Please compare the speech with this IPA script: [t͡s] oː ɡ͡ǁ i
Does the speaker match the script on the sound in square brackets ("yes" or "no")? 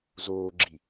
no